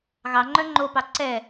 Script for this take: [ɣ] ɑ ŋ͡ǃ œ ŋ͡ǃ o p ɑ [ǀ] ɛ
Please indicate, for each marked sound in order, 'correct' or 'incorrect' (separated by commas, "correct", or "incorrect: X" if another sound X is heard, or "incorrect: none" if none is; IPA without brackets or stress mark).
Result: correct, correct